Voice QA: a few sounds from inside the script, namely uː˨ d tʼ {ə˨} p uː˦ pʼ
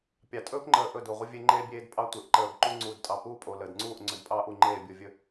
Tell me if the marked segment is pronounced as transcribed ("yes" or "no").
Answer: no